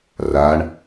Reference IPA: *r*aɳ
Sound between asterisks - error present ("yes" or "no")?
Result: no